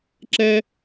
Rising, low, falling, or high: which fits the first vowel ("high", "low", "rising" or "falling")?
high